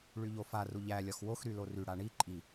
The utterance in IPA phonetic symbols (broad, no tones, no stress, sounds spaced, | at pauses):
ɭ y ʎ o f a r u ʎ æ lʲ ɒ x w o x ɾ y l o r y ɽ a ɳ i ǃʼ i